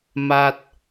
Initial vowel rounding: unrounded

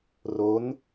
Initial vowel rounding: rounded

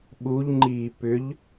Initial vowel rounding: rounded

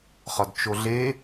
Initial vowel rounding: rounded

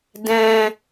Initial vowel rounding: unrounded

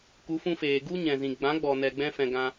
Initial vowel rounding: rounded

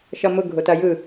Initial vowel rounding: unrounded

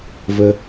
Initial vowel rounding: unrounded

